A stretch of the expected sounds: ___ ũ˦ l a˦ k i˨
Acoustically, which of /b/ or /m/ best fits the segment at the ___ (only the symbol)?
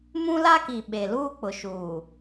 m